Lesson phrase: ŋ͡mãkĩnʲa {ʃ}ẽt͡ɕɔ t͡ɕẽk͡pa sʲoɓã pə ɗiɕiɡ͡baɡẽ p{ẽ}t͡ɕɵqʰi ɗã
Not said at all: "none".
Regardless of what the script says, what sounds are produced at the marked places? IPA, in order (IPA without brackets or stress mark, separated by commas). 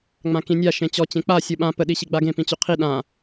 ʃ, ĩ